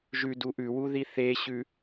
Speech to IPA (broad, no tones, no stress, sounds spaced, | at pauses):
ʒ ʉ d u ʔ ʉ w u ð i θ e ɕ ʉ